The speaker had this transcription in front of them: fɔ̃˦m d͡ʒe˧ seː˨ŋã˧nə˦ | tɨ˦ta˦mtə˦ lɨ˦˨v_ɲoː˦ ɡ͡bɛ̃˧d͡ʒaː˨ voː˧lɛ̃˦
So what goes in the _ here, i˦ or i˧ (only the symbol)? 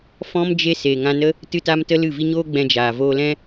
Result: i˦